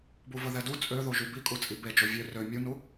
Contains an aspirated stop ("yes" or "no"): no